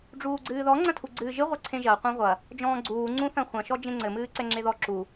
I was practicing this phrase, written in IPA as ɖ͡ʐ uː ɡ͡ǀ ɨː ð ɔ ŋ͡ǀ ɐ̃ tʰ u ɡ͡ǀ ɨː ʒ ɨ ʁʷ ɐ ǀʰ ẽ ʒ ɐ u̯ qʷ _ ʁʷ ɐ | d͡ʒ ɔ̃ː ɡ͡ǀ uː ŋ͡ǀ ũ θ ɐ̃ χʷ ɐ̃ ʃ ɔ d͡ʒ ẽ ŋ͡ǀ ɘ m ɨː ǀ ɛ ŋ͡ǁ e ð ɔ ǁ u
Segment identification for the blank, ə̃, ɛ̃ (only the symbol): ɛ̃